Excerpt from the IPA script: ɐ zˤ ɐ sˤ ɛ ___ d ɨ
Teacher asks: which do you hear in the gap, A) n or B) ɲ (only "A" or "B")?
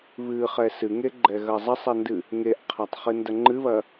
A